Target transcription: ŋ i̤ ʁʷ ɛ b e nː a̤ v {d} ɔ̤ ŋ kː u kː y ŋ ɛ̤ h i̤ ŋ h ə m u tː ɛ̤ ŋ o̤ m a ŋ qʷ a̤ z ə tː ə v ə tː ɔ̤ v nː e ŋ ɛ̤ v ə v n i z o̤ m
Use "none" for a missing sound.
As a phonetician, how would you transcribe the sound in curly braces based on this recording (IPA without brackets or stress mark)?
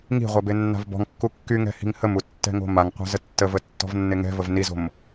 b